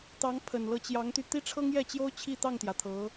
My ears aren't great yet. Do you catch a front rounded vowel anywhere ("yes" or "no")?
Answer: yes